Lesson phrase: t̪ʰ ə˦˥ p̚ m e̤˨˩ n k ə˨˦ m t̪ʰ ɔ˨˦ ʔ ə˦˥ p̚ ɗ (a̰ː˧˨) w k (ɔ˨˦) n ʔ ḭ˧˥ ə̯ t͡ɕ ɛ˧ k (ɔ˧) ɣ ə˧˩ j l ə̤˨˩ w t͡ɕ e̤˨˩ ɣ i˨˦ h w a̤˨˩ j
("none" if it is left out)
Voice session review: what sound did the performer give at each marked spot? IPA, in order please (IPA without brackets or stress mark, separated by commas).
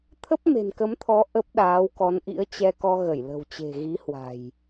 aː˨˦, ɔ˨˦, ɔ˧